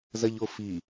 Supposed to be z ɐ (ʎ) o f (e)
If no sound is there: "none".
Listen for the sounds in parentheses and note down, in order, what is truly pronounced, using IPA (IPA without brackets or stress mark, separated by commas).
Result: ʎ, i